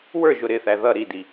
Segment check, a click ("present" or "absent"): absent